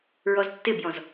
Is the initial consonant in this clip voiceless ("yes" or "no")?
no